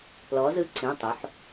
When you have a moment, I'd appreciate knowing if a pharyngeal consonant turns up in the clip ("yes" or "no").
yes